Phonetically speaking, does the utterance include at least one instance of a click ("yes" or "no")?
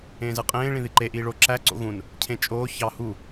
yes